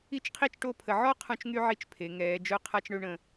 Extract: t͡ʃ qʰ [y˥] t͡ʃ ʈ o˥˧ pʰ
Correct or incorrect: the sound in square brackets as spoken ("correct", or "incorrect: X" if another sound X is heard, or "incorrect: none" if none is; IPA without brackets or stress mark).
incorrect: i˥